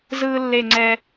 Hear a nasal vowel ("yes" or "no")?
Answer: no